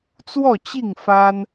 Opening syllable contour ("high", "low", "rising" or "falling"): falling